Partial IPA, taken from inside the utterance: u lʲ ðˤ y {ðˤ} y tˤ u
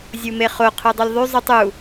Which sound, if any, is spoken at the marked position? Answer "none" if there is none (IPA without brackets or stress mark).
zˤ